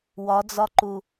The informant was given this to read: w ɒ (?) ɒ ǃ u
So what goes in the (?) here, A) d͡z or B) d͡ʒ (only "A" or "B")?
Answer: A